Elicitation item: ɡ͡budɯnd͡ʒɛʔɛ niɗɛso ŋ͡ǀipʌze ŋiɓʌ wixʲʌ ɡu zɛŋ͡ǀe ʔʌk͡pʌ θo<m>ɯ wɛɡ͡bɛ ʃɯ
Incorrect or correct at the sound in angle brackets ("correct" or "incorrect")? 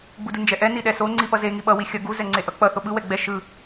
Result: incorrect